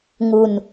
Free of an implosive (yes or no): yes